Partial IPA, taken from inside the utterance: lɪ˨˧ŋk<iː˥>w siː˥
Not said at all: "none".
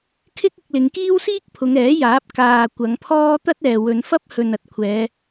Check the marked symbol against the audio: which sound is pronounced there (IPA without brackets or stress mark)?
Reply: iː˥